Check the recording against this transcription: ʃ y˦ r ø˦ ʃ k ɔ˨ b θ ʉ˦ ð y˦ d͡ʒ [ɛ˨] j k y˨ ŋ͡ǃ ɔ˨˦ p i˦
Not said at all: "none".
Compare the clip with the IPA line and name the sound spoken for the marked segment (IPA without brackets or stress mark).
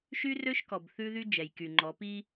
ɛ˨